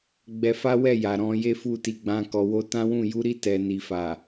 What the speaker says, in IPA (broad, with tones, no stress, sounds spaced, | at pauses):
ɡ͡b ɛ˧ f a˦ w ɛ˦˨ j a˨ ɾ ɔ̃˧ j e˦ f u˦˨ t i˧ ɡ͡b ã˧ k ɔ˨ w o˧ t ã˦ w ũ˦˨ j u˨˦ ɾ i˦˨ t ɛ˨ n i˨ f a˨